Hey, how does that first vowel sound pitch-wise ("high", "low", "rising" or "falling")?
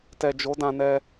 low